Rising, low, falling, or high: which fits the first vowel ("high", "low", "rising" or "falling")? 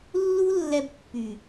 high